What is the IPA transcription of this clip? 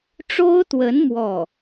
ʈ͡ʂo˥ʊ̯t̪wə˧˥n mwɔ˥˩

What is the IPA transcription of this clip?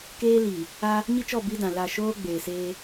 keː˦li˨ | a˦ | ɲi˦t͡ʃɔ˦˨ bi˦dã˨la˦˨ ʃoː˦ ɡ͡beː˨seː˦

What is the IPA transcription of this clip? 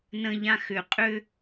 nə̃ʎã xʏ qʼʏ

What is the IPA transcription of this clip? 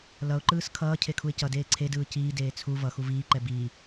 lʌʊ̯ǃɯːs kʰʌːcʰekʰuɪ̯ cʌdeː ǀʰedɯː ciːdeː t͡sʰu vʌxu viːǃɛ biː

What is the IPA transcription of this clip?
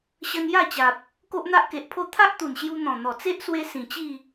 ɕə˧nja˥˧t͡ɕa˨p̚ | ko˦ʔn̪a˦ʔke˨ʔpʰo˦ t̪ʰa˦ʔt̪u˨˩nɕju˧ n̪ɔ̃˨˩n̪ɔ˨˩t͡se˦ʔswe˧ sĩ˨˩t͡ɕi˥˧

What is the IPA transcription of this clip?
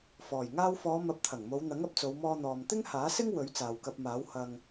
fɔː˨˩j ŋaː˧wfɔː˨˧ mɐ˨˥p̚t̪ʰɐ˨˩ŋmo˨˧w n̪ɐ˨˥ŋɐ˨p̚t͡so˨˧wmɔː˧ n̪ɔː˨mt̪ɪ˥ŋhaː˨˥sɪ˥ŋ wɵ˨˥ɥt͡saː˨wkɐ˧p̚maː˨˥w hɐ˧ŋ

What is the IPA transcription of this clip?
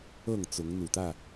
ɤ˥˨ŋt͡sʊ˨˦ŋn̪u˨˩t̪ä˥˨

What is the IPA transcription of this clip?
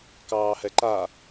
kɑːhɛǃa

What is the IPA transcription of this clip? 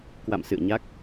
kwa̰˧˨msɨ̰˧˨ə̯ ɲa˦˥k̚

